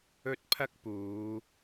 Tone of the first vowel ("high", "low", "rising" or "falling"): high